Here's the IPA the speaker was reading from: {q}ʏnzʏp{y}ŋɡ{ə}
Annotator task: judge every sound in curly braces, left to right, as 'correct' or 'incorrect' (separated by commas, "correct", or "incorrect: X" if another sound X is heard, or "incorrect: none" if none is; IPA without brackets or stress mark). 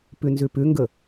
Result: incorrect: p, incorrect: ʏ, correct